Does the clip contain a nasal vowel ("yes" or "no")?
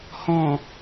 yes